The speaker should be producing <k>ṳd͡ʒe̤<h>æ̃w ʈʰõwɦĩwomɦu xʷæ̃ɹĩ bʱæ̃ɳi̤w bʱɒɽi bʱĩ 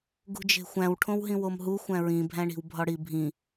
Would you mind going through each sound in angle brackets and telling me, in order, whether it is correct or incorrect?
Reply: incorrect: ɡ, incorrect: xʷ

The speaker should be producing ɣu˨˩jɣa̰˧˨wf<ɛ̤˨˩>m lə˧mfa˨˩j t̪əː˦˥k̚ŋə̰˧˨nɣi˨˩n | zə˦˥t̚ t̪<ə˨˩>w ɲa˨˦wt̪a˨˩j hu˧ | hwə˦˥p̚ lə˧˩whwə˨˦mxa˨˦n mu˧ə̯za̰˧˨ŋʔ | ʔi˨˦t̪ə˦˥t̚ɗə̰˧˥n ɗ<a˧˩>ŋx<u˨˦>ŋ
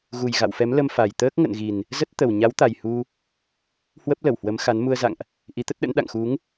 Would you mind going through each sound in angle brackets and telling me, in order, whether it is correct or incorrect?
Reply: incorrect: ɛ˨˦, correct, incorrect: a̰˧˨, correct

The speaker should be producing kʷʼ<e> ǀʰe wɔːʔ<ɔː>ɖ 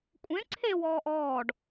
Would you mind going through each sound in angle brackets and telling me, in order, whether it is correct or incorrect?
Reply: incorrect: ẽ, correct

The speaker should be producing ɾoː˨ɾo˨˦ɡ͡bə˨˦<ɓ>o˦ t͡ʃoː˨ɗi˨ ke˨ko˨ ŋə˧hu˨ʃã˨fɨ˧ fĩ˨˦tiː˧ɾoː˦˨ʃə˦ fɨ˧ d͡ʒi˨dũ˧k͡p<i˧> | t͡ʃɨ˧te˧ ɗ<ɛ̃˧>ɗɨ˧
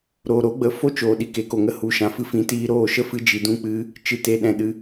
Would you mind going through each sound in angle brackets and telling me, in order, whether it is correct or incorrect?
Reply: incorrect: f, incorrect: ɨ˧, correct

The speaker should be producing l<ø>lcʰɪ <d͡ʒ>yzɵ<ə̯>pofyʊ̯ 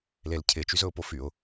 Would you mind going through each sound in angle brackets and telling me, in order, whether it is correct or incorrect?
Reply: incorrect: e, incorrect: t͡ʃ, incorrect: ʊ̯

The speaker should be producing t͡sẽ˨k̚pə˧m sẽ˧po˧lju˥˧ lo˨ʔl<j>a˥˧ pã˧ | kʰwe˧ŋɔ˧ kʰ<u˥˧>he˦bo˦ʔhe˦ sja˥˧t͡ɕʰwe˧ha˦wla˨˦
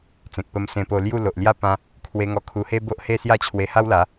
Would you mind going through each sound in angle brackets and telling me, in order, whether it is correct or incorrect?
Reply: correct, incorrect: u˧

